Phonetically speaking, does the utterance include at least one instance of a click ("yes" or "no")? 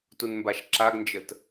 yes